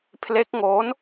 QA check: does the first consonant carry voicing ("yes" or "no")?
no